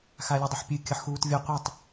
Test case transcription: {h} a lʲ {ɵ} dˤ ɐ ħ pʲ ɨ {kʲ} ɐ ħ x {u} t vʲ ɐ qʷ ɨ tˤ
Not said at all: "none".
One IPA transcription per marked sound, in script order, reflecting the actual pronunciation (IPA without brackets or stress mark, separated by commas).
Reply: x, ɵ, kʲ, uː